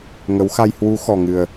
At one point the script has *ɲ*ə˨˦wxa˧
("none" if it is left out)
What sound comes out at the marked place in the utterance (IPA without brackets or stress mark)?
ŋ